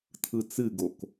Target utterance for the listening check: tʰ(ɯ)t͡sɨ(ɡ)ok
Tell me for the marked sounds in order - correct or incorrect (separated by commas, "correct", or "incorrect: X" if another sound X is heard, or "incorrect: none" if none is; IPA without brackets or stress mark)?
correct, correct